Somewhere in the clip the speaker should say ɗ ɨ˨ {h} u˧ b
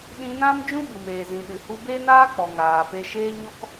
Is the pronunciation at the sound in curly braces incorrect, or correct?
correct